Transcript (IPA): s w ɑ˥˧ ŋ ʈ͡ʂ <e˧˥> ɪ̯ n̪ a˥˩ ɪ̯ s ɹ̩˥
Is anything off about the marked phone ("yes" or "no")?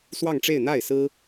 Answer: yes